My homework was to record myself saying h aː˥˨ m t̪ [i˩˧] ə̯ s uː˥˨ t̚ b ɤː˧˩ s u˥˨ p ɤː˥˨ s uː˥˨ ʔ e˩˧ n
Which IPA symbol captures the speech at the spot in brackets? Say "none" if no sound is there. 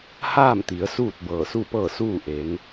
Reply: i˩˧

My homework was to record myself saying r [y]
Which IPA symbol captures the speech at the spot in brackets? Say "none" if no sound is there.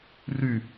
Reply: y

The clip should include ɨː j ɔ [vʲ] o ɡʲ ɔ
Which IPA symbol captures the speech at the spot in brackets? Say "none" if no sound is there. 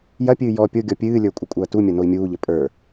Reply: pʲ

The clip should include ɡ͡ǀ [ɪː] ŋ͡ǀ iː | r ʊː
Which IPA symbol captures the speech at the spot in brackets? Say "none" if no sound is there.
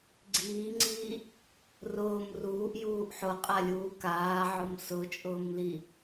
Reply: iː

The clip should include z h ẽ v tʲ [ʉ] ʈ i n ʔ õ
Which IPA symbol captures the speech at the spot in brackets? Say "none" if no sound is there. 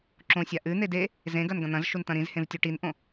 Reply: ʉ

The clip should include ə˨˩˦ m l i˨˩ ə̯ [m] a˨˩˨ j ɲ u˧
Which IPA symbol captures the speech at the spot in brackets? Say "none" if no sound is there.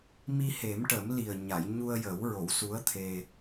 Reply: ɲ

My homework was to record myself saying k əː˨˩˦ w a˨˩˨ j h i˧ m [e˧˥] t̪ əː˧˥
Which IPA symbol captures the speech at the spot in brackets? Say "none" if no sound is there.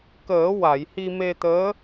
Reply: e˧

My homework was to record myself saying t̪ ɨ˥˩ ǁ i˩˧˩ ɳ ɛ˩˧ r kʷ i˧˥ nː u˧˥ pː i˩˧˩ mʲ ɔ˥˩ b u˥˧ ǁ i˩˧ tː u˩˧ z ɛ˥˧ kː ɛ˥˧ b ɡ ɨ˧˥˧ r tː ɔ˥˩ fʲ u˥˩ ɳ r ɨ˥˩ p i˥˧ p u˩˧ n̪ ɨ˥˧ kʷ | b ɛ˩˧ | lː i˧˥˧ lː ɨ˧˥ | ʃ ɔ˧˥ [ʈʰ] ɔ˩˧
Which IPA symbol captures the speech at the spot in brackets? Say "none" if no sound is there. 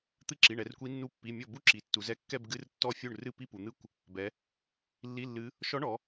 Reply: ɳ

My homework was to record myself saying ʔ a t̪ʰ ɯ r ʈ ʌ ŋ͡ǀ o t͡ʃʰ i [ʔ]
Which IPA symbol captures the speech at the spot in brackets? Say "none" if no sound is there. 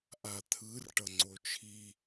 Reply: none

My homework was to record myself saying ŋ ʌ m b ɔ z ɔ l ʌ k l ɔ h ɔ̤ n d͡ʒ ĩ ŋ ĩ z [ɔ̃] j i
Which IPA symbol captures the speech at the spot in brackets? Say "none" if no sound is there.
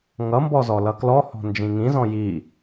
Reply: ɔ̃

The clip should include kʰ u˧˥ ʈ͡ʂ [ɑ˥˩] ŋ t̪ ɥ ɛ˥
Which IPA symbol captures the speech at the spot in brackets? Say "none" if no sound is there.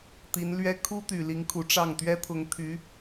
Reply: ɑ˥˩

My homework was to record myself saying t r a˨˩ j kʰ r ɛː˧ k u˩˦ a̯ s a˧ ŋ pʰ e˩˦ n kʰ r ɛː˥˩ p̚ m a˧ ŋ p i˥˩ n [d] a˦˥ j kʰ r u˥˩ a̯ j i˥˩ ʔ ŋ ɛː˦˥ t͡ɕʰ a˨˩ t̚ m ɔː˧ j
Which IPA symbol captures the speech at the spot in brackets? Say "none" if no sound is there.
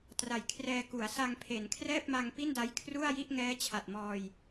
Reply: d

